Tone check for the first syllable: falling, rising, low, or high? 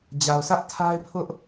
low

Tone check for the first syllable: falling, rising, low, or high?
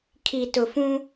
low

